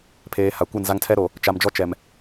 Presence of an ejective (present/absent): absent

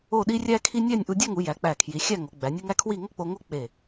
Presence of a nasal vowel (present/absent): absent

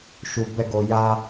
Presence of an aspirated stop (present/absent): absent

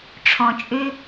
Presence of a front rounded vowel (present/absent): present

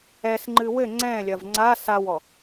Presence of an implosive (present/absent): absent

